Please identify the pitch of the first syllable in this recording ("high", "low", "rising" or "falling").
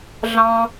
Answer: high